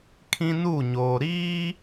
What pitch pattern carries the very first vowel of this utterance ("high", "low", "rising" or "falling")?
high